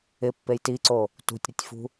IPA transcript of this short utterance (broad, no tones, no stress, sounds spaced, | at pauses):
ɪ pː e j t i ǀ o | t ṳ tʲ ɾ ɪ tʲ f ṳ